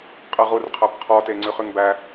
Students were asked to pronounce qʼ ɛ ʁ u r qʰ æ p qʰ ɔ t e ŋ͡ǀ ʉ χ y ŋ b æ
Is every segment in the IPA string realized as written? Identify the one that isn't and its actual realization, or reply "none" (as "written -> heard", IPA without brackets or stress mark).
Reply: none